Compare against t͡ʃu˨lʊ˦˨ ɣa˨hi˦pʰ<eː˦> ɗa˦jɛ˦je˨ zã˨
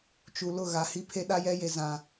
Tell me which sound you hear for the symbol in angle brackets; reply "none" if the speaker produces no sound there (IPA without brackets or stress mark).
e˦